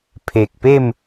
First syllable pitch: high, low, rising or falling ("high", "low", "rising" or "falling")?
low